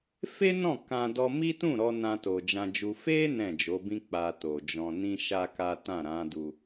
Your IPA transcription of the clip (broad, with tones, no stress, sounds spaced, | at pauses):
f e˦ n ɔ̃˦˨ k ã˧ d ɔ˧ m i˦ t ũ˦˨ ɾ ɔ˧ n ã˧ t o˨ d͡ʒ ã˧ d͡ʒ u˧ f e˦ n ɛ̃˦˨ d͡ʒ o˨˦ b ĩ˦ k͡p a˧ t o˨ d͡ʒ ɔ̃˧ n ĩ˦ ʃ a˦ k a˦ t ã˦˨ ɾ ã˨˦ d u˧